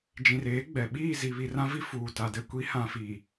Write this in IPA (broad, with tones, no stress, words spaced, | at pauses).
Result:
d͡ʒĩ˨reː˨˦ɡ͡bɛ˨ ɓiː˦˨zi˨βi˨ rã˦vi˦ fuː˨ta˨dɛ˦ kʷi˨˦hã˨fi˨